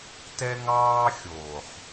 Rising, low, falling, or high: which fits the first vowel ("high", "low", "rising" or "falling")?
high